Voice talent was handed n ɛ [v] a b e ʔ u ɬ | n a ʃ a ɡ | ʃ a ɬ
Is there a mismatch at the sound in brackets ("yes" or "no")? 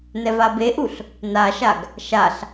no